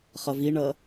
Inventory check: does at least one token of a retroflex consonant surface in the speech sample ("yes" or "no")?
yes